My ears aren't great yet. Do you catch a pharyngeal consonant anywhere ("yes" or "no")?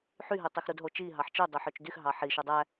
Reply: yes